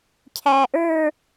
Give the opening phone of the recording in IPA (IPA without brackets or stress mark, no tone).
cʰ